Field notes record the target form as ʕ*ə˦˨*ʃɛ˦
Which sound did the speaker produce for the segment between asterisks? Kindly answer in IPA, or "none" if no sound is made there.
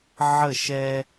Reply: ə˦˨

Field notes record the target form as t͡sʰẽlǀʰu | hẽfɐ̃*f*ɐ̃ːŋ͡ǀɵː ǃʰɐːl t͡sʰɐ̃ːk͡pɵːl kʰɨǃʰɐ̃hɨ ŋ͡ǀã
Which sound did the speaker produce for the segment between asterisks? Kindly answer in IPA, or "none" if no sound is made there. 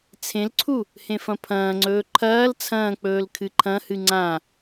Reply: pʰ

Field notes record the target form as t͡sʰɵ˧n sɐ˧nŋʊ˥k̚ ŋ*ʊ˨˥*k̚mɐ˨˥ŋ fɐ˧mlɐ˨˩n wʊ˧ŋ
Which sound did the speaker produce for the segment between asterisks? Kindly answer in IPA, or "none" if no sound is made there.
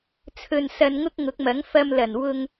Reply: ʊ˨˥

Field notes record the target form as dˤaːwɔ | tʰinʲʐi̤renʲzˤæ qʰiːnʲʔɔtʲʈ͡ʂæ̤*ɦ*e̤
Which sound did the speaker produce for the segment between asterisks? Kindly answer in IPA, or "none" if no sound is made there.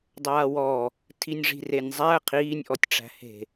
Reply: h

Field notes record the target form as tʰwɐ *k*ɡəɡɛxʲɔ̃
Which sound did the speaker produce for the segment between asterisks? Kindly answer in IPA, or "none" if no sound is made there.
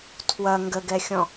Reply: ŋ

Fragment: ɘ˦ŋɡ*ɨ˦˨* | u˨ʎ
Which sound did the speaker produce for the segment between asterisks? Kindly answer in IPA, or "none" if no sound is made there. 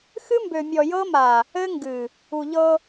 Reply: ɨ˨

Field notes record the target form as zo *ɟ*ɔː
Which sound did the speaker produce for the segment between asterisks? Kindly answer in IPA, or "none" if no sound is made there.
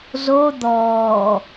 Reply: d̪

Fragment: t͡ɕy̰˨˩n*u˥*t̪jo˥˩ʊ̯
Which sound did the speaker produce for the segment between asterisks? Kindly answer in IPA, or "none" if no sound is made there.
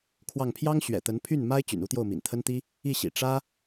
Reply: u˥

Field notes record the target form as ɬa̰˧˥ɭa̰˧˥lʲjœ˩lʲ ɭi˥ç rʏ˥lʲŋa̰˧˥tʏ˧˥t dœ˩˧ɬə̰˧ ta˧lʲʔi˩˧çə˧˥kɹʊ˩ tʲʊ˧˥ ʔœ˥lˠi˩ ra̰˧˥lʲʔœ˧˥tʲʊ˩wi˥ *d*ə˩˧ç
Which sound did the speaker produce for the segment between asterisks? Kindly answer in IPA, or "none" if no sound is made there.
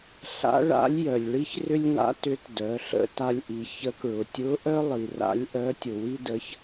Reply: d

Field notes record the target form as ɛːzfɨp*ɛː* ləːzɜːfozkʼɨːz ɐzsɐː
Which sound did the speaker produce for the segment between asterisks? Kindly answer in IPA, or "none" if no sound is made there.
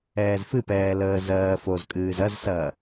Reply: ɛː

